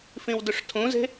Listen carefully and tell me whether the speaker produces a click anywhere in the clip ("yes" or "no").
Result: no